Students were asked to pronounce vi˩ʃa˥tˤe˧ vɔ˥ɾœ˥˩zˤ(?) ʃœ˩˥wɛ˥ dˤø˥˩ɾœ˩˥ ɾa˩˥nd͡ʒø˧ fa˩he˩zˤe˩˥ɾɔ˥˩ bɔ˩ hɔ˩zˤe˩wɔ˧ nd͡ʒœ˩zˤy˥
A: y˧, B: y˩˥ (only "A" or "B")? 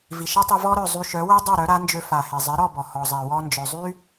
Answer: A